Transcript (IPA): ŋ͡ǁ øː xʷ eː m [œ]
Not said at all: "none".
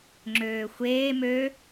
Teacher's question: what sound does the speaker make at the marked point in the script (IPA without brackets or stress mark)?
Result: ø